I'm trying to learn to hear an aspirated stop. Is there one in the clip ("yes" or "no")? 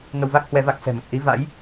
no